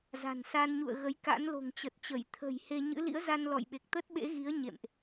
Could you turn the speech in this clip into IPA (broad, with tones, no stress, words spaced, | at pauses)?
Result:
za̤˨˩nsa˧nɲṵ˧˨ə̯ɣə˨˦j ka̰˧˥nlo̤˨˩ŋt͡ɕə˨˩t̚t͡ɕə˧˩j t̪ʰə̤˨˩j he˧ɲɨ̰˧˥ lḭ˧˥ə̯ za˧nlɔ̰˧˨jɓe˨˩k̚ t̪ə˦˥t̚ɓḛ˧˥ɣi˨˦ə̯ ɲḛ˧˨mʔ